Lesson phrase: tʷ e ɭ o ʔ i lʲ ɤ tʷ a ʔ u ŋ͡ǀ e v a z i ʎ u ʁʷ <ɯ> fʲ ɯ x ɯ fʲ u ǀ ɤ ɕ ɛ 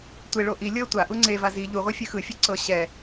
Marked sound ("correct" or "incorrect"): correct